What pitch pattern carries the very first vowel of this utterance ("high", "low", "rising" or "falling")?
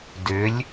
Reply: rising